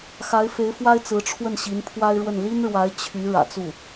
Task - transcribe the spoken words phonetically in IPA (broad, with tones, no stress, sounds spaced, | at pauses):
x a˧˥ ɪ̯ f e˧˥ ɪ̯ f w a˥ ɪ̯ t͡s ɹ̩˧˥ ʈ͡ʂʰ w ə˥˩ n ɕ i˧˥ n pʰ w a˥ ɪ̯ ɻ w ə˥˩ n l i˥ n ɻ w a˧˥ ɪ̯ t͡ɕʰ y˧˥ ɻ ä̰˨˩ t͡s u˥˩